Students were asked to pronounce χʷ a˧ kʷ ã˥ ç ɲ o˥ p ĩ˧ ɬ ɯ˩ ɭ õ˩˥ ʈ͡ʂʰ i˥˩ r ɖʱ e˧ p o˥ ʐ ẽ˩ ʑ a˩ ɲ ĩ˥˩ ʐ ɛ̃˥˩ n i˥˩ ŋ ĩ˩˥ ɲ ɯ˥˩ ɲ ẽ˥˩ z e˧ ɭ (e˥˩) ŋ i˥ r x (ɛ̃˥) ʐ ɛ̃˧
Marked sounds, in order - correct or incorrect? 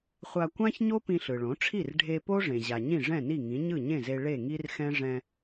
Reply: correct, correct

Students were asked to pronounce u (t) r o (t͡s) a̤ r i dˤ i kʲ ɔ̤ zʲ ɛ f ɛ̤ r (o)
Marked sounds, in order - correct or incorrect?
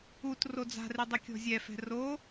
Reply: correct, incorrect, correct

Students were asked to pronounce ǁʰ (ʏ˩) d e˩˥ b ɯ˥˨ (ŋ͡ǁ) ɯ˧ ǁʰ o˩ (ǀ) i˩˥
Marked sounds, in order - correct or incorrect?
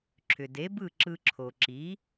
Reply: correct, incorrect, incorrect

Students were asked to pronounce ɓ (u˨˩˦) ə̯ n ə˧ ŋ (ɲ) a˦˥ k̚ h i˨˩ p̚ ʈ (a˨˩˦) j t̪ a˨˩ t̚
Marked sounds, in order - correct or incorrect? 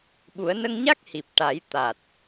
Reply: correct, correct, correct

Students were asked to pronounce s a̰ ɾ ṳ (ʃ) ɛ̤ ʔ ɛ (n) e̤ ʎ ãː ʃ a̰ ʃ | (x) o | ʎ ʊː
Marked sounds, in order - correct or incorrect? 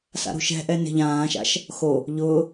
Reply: correct, correct, correct

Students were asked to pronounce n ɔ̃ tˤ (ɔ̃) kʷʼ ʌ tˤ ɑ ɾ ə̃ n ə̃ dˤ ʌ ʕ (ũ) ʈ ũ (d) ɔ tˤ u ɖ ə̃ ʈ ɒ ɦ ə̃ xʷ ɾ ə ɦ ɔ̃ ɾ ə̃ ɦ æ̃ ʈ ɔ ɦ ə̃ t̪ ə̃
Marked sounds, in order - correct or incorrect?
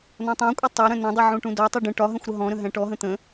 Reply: incorrect, correct, correct

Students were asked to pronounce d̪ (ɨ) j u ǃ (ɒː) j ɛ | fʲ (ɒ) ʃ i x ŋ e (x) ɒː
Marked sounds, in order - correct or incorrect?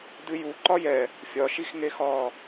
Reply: correct, incorrect, correct, correct

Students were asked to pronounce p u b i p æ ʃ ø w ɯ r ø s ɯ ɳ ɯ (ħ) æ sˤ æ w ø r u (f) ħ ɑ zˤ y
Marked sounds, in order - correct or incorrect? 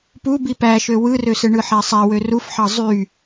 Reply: correct, correct

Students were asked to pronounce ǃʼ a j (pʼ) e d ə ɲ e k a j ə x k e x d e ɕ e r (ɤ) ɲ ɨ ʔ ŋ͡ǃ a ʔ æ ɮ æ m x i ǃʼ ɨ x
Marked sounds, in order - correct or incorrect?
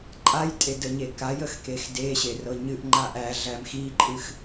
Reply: incorrect, correct

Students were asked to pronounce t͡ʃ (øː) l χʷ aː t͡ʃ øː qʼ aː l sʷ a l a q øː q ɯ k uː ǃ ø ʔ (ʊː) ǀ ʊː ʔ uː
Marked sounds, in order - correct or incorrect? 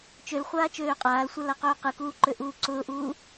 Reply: incorrect, incorrect

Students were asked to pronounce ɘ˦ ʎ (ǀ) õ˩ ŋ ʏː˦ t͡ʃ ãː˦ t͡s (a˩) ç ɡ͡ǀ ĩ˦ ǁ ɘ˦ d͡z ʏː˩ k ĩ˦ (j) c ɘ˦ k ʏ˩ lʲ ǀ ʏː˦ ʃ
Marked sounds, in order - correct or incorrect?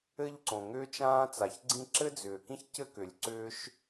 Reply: correct, correct, incorrect

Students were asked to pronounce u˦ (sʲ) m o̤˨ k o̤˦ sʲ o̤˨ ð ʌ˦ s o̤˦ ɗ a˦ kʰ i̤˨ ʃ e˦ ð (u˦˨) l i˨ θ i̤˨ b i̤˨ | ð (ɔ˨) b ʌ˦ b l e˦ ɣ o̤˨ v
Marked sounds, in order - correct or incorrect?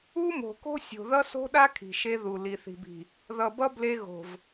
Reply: incorrect, incorrect, incorrect

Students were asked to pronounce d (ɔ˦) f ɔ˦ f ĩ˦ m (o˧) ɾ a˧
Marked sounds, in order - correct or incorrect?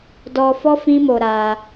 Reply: incorrect, correct

